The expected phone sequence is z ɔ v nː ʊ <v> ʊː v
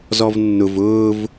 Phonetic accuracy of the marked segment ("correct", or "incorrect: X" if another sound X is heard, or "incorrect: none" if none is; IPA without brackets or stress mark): correct